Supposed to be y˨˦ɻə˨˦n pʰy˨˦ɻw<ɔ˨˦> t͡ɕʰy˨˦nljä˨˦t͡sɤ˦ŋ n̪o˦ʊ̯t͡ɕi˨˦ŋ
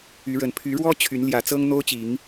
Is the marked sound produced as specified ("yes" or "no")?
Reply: no